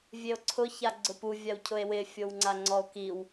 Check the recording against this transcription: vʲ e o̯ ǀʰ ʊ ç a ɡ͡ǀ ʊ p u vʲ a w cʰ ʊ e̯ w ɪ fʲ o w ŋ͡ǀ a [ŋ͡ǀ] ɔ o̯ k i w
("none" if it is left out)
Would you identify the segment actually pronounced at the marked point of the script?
ŋ͡ǀ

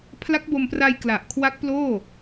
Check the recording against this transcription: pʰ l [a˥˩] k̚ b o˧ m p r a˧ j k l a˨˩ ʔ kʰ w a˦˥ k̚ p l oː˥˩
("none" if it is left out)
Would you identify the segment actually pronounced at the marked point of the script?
a˦˥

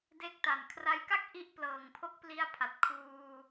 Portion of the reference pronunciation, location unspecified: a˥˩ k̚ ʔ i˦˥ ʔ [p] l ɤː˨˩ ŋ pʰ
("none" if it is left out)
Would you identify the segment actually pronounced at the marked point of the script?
p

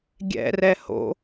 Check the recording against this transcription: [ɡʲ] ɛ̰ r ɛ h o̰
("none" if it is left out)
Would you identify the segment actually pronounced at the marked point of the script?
ɡʲ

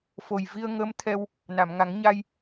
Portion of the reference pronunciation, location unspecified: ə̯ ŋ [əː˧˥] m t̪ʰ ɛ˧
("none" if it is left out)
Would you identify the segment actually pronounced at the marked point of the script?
əː˧˥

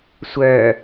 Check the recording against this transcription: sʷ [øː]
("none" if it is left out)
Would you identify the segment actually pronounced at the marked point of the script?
œː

